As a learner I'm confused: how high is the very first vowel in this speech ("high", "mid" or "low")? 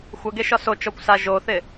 mid